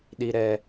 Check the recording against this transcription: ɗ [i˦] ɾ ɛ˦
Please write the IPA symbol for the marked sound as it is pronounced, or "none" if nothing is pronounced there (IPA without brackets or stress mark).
i˦